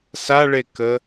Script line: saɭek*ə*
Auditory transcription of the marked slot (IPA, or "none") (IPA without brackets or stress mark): ə